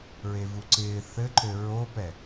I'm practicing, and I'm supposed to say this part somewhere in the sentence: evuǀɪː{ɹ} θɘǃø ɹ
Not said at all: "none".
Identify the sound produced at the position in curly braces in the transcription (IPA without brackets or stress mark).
none